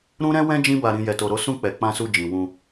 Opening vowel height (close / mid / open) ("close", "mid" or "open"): close